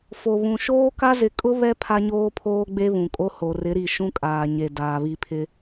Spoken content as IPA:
f o˨ β ũ˨ ʃ oː˦ k a˦ z ɪ˨˦ kʼ ʊ˦ β ɛ˦ pʰ a˦ ɲ oː˦ pʰ oː˦ ɡ͡b e˦ β ũ˨ kʼ o˦ h o˨ r ɪ˨˦ ɾ i˨ ʃ ũ˦ kʼ aː˨ ɲ e˨ d aː˨ β i˦ pʰ ɪ˦

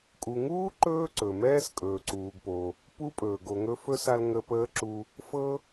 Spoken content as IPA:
kʼ u˨ ŋ uː˥ ǃ ɵː˥ ǀ ɵ˩ m ɛː˥ s kʼ ɵː˨ ǀ uː˨ ɡ p o˨ | p u˦ pʼ ɵː˩ ɡ o˨ ŋ ɵ˦ f ɵ˥ s a˦ l ŋ ə˦ p əː˥ ǁ u˦ | f ɤ˥

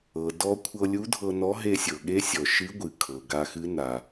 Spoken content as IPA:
ɤ˩ d ɔ˧ kʷʰ ɤ˧ lʲ u˧˥ dʱ ɤ˧ n ɔ˧˥ ɦ e˧ sʲ ɤ˩ ɠ e˧˥ sʲ ɔ˩ ʃ ɨ˧˥ ɡʷ ɨ˩ kʰ ɤ˩ ɡ a˧ x ɨ˧˥ n a˩

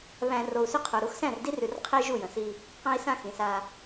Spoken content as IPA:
β æ̃˨ r o˨ u̯ s ʏ˦ qʰ o˨ ɾ u˨˦ x s æ̃˦˨ r d i˦ r ʉ˨ r qʰ i˦ ʒ u˦˨ j ə̃˨ s i˦ | q æ̃˦ i̯ s ã˦ x ĩ˨ s a˦

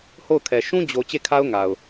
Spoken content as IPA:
h o˦˨ ʊ̯ kʰ ɛ˨ ʃ ũ˦ d͡ʑ o˨ t͡ɕ e˦˨ kʰ a˦ ʊ̯ ŋ a˨ ʊ̯

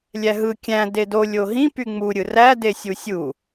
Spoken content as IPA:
lʲ æ ɦ ɯ kʲ æ̃ d e d o lʲ o ɦ ĩ p y ŋ͡m u ɾʲ ɯ r æ d e sʲ u sʲ u

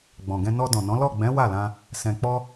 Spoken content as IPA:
ɡ͡b ɔ̃˨ ɡ ɛ̃˧ n ɔ˧ d ɔ̃˨ n ɔ̃˨˦ l ɔ˦˨ ɡ͡b ɛ̃˨˦ w a˦˨ l ã˧ | s ɛ̃˨ k͡p ɔ˧

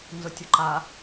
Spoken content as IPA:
n z ʊ tʲ ʊ ǃ a

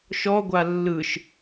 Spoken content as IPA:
ʃ ɔ ɡʷ a lː ɯ ʃ

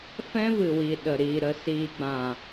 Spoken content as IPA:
f ɛ̃˦ v ɨ˨ w i˨ ɗ ə˨ ɾ iː˨ ɾ ə˨ s iː˨ ɡ͡b ã˨

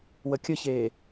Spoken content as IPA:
w ə kʲ ə ç eː

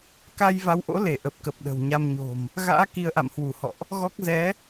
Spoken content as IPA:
k a˧ j v a˨˦ w ʔ o̰˧˥ l e˧˩ ʔ ə˨˩ p̚ k ə˨˩ p̚ ɗ ə̤˨˩ w ɲ a˧ m ɲ o̤˨˩ m | ɣ a̰ː˧˥ k i˧ ə̯ ʔ a̰˧˨ m h w u˧˩ h ɔ̰˧˨ ʔ | ɣ ɔ˦˥ k̚ z ɛ˨˦

